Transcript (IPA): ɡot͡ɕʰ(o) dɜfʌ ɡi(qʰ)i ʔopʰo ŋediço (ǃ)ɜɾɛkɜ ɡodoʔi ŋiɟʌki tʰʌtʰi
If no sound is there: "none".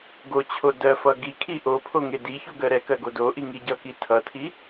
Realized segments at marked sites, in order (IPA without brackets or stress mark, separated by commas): o, kʰ, ɡ